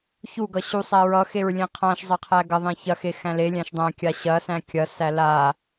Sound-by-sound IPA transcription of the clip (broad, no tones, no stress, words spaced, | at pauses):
çuɡʌ ɕusˤæ ɹʌxeɹlʲẽ qʰãʃzˤɐqʰæ ɡɐðˤẽ çɐxexæ̃ lelʲæ̃ʃ dˤæ̃kʲa ɕɐsæ̃ kʲɐsæ la